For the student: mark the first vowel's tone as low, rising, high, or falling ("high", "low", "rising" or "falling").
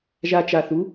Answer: low